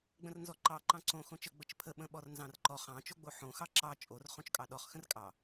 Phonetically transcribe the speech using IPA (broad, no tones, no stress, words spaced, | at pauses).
ɡ͡bə̃rnzɔǃɑ ǃɑ̃ǀõ xõt͡ʃə ɡ͡bət͡ʃpʰə ɓə̃ɓɔrnzɑ̃rǃɔχ ɑ̃ t͡ʃoɡ͡boħõ xɑǁɑ t͡ʃʼor χõt͡ʃkʼɑɗɔχ xə̃rkʼɑ